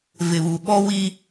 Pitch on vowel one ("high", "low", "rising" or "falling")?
low